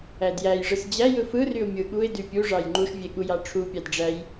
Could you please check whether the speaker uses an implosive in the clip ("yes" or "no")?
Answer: yes